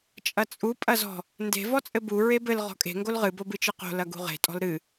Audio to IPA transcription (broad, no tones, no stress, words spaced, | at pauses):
t͡ʃʼɐt͡sʼu pʼɐzɔ̤ | nde̤ vɔt͡sʼɘbu ɹebɘl ʁɔ̤kʼe̤ ŋɡolʁɨ bobɨt͡ʃɨqo̤ lɐɡṳʁe̤ tʼɔ̤lɾɨ